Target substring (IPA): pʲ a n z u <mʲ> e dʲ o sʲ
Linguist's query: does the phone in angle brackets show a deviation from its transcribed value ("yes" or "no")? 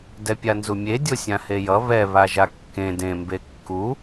no